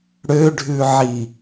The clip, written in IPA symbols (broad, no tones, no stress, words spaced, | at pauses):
ɽøɖʱʉʕi